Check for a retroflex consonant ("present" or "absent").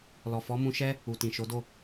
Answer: absent